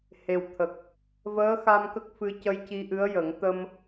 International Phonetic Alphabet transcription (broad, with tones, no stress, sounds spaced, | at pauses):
h e˨˩ w t̪ʰ ə˨˩ k̚ | v əː˧˥ x a˧ m k ə˦˥ k̚ f ɨ˧ c ə˧ j c i˧ ʔ ɨ˧˥ ə̯ j ə˨˩˦ ŋ t̪ ə˧ m